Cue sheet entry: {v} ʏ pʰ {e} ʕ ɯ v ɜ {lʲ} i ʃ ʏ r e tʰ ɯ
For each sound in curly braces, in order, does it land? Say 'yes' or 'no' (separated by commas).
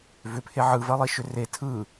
yes, yes, no